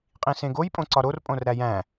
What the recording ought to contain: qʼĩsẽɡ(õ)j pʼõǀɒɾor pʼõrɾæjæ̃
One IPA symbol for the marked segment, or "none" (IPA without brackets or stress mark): o